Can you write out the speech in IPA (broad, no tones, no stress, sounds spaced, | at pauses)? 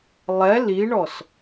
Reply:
lˠ ɛ l i ɳ ɔ s